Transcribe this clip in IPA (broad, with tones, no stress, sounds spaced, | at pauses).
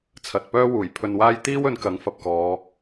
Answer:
t͡sʰ ɐ˨ t̚ p œː˥ w uː˨˩ j pʰ ɵ˧ n w aː˥ j t̪ iː˥ w ɵ˨˧ n k ɐ˨˥ ŋ f ɐ˧ p̚ k ɔː˨˧